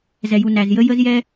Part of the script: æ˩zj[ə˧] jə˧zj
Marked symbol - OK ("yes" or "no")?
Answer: yes